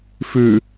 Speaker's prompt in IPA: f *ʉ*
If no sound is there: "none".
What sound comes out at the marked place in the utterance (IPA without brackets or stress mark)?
ʉ